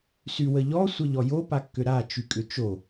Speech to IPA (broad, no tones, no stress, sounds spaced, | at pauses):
s y w ə ʎ ɔ sʷ ə ʎ ɔ j o p a kː ʏ ɾ a t͡ʃ y kʼ ʏ t͡ʃ o